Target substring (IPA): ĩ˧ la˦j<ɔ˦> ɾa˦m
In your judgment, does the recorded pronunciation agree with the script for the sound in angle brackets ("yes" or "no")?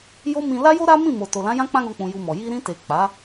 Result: no